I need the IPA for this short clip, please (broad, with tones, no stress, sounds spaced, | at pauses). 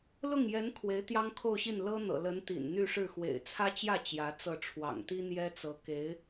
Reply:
l ʊ˥˩ ŋ j ɛ˧˥ n kʰ w e˧˥ ɪ̯ t̪ j ɑ˥ ŋ kʰ o˥˧ ʊ̯ ɕ i˥˩ n l ɤ˥ n̪ ɤ̰˨˩ l ə˧˥ n t̪ ḭ˨˩ n n̪ y˥˧ ʂ ɻ̩˥˩ x w ḛ˨˩ ɪ̯ t͡sʰ ä˥ t͡ɕ j ä˥˩ t͡ɕ j ä˧˥ t͡s ɤ˥˩ ʈ͡ʂʰ w ɑ̰˨˩ ŋ t̪ i˥ n̪ j ɛ˥ t͡s ɤ˧˥ k e˧˥ ɪ̯